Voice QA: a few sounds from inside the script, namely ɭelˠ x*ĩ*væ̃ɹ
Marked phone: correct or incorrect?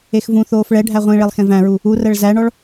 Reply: incorrect